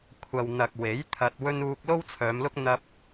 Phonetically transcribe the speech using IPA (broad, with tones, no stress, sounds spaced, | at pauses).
kʷʰ ɐ˨ w n̪ ɐ˨ k̚ w e˨˥ j t̪ʰ ɐ˧ t̚ w ɵ˥ n uː˧ k̚ l o˥ w t͡sʰ œː˨˧ m l ʊ˥ k̚ n̪ ɐ˧ p̚